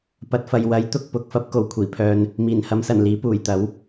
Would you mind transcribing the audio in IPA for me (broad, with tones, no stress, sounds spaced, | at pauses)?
p ɐ˨˥ t̚ f ɐ˨ j w ɐ˨˥ j t̪ ʊ˧ k̚ p ʊ˨ k̚ f ɐ˥ p̚ k o˨˧ w kʷʰ iː˨˩ pʰ œː˧ n | m iː˨˩ n h ɐ˨˧ m s ɐ˨˩ n l iː˨˥ p uː˨˩ j t̪ ɐ˨˥ w